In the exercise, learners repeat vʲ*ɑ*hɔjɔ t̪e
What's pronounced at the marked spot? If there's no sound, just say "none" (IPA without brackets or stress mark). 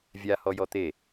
a